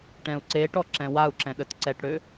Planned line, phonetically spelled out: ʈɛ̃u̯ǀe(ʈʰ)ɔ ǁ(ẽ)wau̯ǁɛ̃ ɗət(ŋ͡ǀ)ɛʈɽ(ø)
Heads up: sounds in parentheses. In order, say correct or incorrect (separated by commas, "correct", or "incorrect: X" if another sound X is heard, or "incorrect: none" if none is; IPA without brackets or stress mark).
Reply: incorrect: ʈ, incorrect: ɛ̃, incorrect: ǀ, correct